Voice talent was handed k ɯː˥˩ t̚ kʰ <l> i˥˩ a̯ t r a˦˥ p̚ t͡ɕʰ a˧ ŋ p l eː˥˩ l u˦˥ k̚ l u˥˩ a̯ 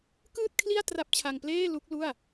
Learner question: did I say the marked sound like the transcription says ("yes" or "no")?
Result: yes